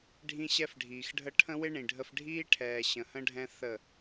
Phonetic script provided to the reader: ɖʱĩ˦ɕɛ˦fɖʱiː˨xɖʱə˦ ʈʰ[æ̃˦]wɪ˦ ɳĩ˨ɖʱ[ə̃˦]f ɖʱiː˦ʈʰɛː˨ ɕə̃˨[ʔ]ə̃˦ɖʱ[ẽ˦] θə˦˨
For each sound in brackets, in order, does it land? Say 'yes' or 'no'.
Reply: no, no, no, no

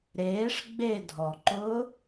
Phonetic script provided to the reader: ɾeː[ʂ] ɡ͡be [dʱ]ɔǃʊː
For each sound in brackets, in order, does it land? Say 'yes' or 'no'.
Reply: yes, yes

